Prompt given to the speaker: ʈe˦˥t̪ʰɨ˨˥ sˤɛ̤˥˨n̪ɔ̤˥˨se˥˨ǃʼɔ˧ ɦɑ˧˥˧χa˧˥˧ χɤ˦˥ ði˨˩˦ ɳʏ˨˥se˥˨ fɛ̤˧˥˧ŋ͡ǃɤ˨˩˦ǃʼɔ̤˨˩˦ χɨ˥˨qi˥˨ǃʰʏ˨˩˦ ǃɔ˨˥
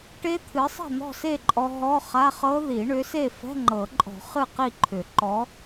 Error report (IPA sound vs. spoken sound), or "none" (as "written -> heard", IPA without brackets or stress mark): ɑ˧˥˧ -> ɔ˧˥˧